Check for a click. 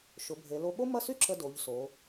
present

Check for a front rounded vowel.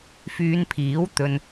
present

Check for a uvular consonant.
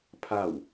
absent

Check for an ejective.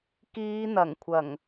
absent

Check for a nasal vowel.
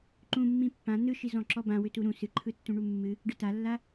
present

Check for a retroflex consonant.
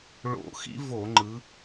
present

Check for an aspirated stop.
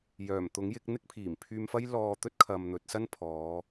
present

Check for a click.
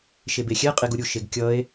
absent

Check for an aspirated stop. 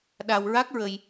absent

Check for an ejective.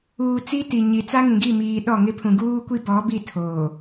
absent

